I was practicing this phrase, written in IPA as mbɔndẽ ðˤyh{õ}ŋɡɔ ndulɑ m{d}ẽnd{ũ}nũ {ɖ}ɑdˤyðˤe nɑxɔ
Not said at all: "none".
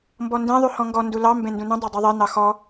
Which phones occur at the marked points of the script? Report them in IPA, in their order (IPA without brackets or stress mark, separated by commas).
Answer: ɔ̃, b, ũ, dˤ